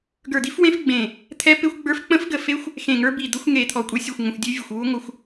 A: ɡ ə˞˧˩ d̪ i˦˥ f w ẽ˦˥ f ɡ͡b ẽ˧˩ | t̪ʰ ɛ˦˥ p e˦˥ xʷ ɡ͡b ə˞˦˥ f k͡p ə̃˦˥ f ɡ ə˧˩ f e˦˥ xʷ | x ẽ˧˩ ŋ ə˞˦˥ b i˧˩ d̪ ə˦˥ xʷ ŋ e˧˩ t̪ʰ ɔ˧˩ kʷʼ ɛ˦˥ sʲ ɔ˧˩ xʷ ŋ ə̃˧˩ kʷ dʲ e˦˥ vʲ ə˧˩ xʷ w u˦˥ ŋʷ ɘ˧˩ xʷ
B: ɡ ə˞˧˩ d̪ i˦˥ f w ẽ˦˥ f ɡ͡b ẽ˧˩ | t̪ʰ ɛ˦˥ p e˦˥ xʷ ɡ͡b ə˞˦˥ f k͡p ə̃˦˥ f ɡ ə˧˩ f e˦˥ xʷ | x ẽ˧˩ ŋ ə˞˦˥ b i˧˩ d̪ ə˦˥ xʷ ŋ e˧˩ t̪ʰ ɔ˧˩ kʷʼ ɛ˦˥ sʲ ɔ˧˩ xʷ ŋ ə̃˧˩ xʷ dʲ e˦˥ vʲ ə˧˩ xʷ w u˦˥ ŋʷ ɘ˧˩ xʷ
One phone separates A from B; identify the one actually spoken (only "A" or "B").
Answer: B